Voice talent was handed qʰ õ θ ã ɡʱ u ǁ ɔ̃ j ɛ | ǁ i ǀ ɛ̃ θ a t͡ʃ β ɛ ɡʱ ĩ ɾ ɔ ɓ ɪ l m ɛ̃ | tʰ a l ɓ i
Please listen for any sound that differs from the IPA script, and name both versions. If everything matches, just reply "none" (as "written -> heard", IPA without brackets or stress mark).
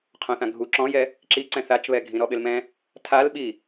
none